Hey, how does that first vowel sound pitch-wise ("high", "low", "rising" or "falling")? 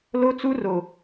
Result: high